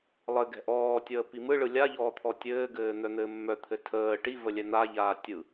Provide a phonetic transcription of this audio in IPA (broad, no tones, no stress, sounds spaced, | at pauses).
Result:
lˠ ɘ ɡ ɛ̤ ʔ ɔː tʲ əː p i m ɯ ɭ ɯ lʲ a ʎ ɔː t̪ʰ ɔ tʲ ɘː ɡ ɘː n̪ œ n̪ ɘː mː œ t̪ʰ ɘ tʰ əː ʈ i v ə lʲ ɛ n̪ a ʎ aː tʲ ɯ